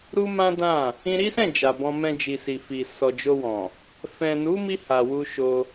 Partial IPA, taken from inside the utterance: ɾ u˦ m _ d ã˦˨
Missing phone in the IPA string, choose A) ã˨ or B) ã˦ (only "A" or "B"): B